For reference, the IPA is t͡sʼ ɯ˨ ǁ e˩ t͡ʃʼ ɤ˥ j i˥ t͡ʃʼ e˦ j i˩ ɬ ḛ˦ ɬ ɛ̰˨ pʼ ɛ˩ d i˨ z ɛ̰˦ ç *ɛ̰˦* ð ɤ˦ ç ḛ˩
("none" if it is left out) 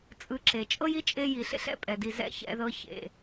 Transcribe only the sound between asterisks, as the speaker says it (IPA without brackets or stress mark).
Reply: ɛ̰˦